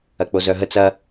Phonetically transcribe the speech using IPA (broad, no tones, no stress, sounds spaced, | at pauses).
ɐ k͡p o z œ ɦ ə t͡s ɐ